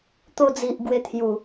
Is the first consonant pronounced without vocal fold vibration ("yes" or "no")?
yes